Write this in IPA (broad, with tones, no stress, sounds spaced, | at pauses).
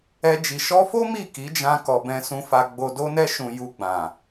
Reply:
ɛ˧ d͡ʒ i˨ ʃ ɔ˧ f o˦ m i˦˨ k i˨˦ d͡ʒ ã˧ k ɔ˨ b ɛ̃˧ s ũ˧ f a˧ ɡ͡b o˧ d o˧ n ɛ˧ ʃ ũ˨ j u˧ ɡ͡b ã˨